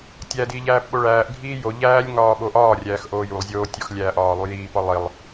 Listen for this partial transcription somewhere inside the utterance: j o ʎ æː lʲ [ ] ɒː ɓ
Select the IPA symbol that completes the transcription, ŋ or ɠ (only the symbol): ŋ